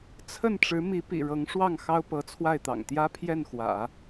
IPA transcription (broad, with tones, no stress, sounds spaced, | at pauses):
t͡sʰ ə˥˩ n ʈ͡ʂ ɻ̩˧˥ m i˧˥ p ḭ˨˩ ɻ ɤ˧˥ ŋ ʂ w ɑ˥˩ ŋ x ɑ˥ ʊ̯ p ɤ˧˥ t͡sʰ w a˥˩ ɪ̯ t̪ ɑ̰˨˩ ŋ t̪ j ä˥ pʰ j ɛ˥˩ n x w ä̰˨˩˦